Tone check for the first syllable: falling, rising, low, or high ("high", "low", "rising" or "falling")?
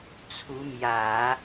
rising